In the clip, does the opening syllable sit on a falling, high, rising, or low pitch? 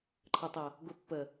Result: low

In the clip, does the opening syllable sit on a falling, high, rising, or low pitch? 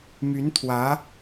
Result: rising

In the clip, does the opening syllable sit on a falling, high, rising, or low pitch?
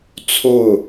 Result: falling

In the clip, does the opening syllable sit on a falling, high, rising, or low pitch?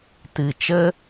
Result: low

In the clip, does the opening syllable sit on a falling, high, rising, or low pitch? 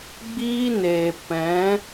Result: high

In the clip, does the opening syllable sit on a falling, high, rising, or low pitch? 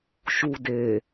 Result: low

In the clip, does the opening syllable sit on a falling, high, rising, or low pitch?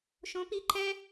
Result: rising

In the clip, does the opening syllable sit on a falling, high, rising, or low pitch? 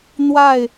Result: falling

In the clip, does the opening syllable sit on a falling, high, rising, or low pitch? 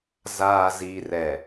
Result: low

